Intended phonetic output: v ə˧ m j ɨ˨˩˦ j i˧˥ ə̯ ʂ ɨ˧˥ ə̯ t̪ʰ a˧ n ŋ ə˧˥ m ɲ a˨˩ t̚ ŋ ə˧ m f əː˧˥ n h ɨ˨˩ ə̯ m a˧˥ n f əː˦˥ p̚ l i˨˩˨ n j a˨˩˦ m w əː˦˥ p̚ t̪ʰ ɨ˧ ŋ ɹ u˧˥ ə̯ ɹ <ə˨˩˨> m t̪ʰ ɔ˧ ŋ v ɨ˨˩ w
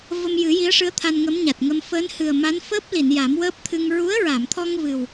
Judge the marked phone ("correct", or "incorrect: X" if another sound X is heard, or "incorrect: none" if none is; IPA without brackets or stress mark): incorrect: a˨˩˨